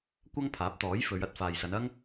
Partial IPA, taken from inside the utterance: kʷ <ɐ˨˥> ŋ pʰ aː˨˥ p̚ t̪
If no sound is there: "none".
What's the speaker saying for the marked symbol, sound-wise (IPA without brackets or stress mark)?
ɐ˥